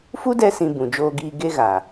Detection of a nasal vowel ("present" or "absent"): present